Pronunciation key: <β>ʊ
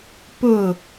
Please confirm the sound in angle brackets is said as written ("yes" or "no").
no